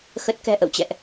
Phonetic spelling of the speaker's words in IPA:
xə˦˥t̚ kɛ̤˨˩ʔə̰˧˨wt͡ɕɛ̰˧˨ʔ

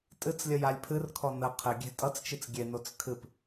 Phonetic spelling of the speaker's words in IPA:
tʼɨt͡slʲə jalʲpʰɨrkʰɔ nə qʰɘɡʲe̤ tʼʌt͡st͡ʃɨt͡s ɡʲenot͡s kʰɨp

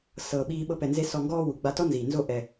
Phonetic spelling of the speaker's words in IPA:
sɤː˨ɓiː˧ ɓɤ˧pɛ˨nze˧ sɔ˨ŋɡɔː˧ wu˨ɡ͡ba˧ tɔ˦nziː˨nzo˦˨ ʔɛ˨

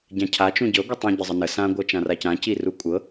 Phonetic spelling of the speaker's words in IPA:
ɟãcʰa t͡ʃũɟɤ ɡʷitˤũ ɟəzˤənə sã ɡʷɤt͡ʃãracã cirukʷʼɤ

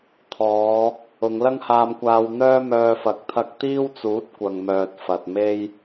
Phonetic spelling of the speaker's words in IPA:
t̪ʰɔː˨˧ | ʊ˨˧ŋlɐ˥ŋhaː˧mkʷaː˧w n̪œː˥mœː˧fɐ˨˥k̚ t̪ʰɐ˧k̚t̪iː˥wt͡suː˨˥t̚ kʷɐ˨ŋmœː˨t̚ fɐ˨t̚me˥j

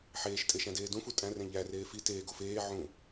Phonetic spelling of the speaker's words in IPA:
ħeːʃtʼe ʃæ̃deːdũfu tʼæ̃rẽ ʎæreː fi teːɡo feː ʕũ

